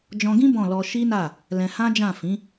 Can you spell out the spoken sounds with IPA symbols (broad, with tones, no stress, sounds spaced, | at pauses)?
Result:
d͡ʒ ɔ̃˧ ɡ ĩ˦ b ɔ̃˦˨ l ɔ˧ ʃ i˦ n a˦˨ | l ɛ̃˧ h ã˦ d͡ʒ ã˦˨ f ĩ˨˦